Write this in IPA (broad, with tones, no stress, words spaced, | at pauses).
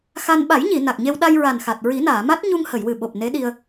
xa˧n ɓa˨˩˦jɲi˨˩˨ na˨˩k̚ɲe˧w ɗa˧jɹa˨˩nxa˨˩t̚ ɹi˨˩˦naː˨˩˨ ma˦˥t̚ɲu˧ŋ hə˨˩˨jwɨ˨˩ɓo˨˩p̚ ne˧˥ɗi˧ə̯